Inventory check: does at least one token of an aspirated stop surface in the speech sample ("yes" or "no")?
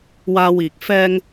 no